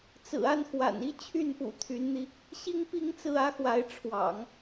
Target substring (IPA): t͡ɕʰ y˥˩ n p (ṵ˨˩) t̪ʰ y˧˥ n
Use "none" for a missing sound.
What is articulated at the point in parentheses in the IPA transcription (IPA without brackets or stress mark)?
ṵ˨˩